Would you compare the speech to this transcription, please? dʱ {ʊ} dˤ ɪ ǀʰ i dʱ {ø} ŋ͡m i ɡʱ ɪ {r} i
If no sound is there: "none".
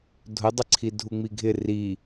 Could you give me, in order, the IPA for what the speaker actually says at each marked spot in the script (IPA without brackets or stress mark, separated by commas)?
ʊ, u, r